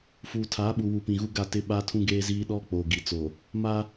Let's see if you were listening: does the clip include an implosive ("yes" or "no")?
yes